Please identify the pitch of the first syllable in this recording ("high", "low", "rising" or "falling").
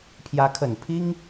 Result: rising